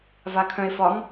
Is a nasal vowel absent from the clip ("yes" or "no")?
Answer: no